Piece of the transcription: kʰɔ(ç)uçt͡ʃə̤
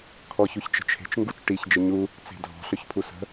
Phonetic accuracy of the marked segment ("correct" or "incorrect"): correct